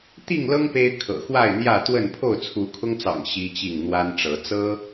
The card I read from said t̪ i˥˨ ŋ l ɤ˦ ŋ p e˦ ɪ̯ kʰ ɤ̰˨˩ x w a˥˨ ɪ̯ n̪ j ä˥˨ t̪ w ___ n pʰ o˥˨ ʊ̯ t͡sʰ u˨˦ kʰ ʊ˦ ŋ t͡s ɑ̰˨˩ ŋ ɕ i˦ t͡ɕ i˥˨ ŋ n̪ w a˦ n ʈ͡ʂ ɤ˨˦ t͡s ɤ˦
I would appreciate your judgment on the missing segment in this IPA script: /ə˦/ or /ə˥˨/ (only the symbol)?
ə˥˨